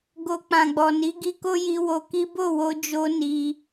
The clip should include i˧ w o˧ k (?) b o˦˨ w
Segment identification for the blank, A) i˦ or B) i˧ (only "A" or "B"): A